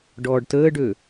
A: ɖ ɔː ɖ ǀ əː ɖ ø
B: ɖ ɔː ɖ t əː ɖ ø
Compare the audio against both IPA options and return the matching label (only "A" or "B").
B